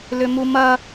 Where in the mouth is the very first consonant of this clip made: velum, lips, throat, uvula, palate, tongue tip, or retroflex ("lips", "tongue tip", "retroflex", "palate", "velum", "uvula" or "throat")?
tongue tip